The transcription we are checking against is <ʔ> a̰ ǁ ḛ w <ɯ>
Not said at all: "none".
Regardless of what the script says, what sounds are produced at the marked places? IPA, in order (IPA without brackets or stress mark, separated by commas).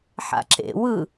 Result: ħ, ɯ